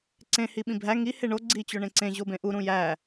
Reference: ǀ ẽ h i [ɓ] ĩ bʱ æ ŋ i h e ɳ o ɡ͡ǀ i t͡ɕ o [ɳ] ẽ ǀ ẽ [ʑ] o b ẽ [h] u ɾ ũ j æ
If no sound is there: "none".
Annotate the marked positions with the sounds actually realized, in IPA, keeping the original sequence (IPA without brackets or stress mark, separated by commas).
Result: ɓ, ɳ, ʑ, ʔ